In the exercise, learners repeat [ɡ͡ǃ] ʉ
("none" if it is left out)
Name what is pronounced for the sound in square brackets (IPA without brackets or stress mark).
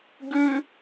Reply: ɡ